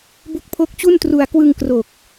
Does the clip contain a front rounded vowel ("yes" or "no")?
no